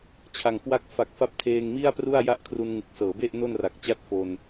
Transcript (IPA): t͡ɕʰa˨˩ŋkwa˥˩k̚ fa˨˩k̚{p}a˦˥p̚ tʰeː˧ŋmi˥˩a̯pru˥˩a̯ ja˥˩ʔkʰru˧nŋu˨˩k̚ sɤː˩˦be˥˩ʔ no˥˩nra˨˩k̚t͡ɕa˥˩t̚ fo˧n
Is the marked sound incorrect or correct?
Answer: incorrect